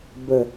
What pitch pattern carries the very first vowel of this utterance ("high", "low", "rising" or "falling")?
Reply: low